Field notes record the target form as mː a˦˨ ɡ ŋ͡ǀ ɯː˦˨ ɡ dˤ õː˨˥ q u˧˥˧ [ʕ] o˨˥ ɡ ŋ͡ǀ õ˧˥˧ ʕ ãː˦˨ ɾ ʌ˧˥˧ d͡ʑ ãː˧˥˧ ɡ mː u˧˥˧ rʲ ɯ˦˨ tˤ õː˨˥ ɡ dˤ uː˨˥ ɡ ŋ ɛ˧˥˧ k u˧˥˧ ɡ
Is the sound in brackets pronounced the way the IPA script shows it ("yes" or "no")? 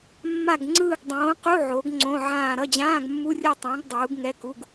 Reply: yes